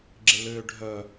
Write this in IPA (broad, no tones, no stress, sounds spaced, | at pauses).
ɡ͡ǁ ɪ l ʏː ɖʱ œ